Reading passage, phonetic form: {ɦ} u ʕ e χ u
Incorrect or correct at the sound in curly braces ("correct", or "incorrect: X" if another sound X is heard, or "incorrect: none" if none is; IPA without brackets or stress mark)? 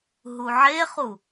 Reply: correct